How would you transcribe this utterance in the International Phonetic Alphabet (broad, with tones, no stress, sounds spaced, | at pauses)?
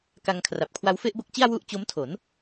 k a˧ ŋ kʰ r a˨˩ p̚ kʰ w a˧ w f e˥˩ ʔ b o˦˥ k̚ t͡ɕ i˥˩ a̯ w u˥˩ ʔ t͡ɕ o˦˥ m tʰ o˩˦ n